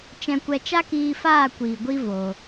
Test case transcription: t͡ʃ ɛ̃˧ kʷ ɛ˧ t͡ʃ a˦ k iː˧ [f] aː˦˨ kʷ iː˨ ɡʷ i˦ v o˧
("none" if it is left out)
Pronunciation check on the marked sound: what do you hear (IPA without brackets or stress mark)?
f